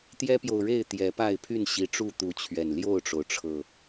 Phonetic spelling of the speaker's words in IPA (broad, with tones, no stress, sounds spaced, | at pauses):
t̪ j ɛ˦ p j o˨ ʊ̯ ɻ e˥˨ ɪ̯ t̪ j ɛ˨˦ p a˥˨ ɪ̯ pʰ y˥˨ n ɕ i˨˦ ʈ͡ʂ u˥˨ t̪ u˨˦ t͡ɕʰ ɥ ɛ˨˩ n l j o˥˨ ʊ̯ ʈ͡ʂ o˩ ʊ̯ ʈ͡ʂʰ ɤ˨˩